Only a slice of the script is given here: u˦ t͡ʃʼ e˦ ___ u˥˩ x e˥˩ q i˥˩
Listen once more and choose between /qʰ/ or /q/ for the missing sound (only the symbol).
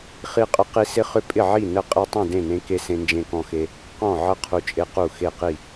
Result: q